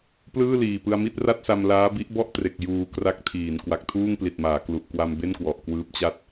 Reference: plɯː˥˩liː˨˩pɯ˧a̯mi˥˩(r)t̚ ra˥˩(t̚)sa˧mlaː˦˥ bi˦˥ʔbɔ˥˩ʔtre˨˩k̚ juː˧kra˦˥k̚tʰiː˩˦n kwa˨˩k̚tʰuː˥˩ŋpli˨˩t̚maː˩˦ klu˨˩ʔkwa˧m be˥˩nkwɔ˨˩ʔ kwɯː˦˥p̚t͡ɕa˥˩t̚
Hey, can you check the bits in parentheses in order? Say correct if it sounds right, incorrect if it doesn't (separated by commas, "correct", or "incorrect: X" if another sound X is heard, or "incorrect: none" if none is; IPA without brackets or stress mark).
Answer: incorrect: none, correct